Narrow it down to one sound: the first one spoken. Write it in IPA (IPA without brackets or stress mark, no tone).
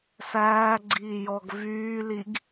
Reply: s